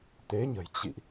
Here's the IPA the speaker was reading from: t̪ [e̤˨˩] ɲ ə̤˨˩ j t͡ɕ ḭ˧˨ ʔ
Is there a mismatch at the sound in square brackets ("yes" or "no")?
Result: yes